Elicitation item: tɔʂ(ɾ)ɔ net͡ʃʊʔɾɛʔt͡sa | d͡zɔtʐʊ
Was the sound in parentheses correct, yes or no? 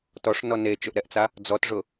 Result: no